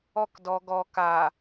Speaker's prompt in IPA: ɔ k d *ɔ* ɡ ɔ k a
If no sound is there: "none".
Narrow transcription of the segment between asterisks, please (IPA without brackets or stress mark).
ɔ